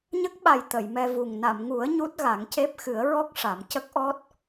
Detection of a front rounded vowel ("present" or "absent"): absent